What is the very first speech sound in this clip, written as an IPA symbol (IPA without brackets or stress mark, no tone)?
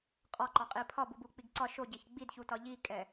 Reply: qʼ